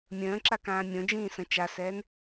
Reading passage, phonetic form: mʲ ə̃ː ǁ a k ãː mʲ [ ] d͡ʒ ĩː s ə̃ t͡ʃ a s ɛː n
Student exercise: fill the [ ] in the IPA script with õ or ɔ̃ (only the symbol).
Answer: õ